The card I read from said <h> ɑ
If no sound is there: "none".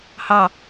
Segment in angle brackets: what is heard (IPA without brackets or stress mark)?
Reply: h